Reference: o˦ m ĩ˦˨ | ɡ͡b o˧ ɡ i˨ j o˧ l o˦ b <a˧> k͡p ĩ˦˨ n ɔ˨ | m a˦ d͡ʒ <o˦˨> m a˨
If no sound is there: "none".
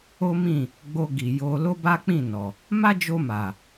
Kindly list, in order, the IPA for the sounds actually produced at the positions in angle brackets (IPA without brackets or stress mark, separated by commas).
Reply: a˦, o˧